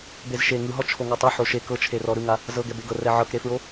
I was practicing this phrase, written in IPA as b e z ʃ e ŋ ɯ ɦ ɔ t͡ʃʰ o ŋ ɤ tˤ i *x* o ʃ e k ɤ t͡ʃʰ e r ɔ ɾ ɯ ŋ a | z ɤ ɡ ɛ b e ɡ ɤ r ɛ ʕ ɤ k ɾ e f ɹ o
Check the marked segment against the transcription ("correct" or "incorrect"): incorrect